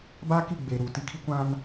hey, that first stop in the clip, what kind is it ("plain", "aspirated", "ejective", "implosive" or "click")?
plain